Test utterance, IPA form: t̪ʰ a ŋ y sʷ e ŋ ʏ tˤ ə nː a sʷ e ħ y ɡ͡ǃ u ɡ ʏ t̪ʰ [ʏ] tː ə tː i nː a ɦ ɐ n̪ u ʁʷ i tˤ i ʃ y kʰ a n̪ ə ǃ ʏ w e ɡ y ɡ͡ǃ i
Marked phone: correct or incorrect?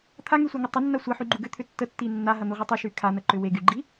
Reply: correct